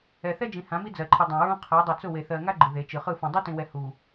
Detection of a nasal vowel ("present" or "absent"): present